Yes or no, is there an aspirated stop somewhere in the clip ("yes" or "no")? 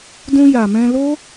no